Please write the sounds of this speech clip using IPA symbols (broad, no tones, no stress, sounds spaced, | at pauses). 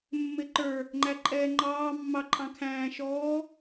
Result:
mː ɪ ǃ ə˞ | ŋ͡ǃ æ ǃʼ ɛː ŋ͡ǃ ɑː mː ɑ ǃʼ ɑ̃ kʰ æ̃ː ʃ ɔː